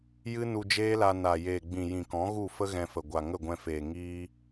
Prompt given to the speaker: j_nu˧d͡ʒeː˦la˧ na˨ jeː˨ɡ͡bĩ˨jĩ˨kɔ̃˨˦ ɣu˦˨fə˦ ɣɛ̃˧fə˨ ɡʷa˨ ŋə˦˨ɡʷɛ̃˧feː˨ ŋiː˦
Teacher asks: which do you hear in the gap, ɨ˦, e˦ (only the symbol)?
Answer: ɨ˦